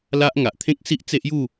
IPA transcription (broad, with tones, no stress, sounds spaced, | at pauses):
l a˦ ʔ ŋ a˨ ʔ t̪ʰ ẽ˦ k̚ s i˦ ʔ t͡s e˦ ʔ j u˥˧